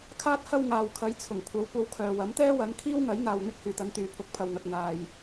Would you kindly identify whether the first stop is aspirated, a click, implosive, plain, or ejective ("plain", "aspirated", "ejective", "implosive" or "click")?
aspirated